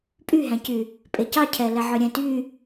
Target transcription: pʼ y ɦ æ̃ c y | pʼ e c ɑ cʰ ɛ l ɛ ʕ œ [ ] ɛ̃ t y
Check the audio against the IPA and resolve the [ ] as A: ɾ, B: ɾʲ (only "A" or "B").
B